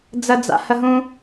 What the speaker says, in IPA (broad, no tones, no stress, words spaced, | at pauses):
d͡zəd͡za̰ həɦũ